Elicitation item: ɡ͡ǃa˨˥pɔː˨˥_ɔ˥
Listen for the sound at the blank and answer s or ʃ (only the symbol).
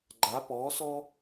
s